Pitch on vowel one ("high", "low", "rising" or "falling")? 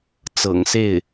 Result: low